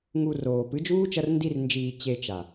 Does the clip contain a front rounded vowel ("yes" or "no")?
no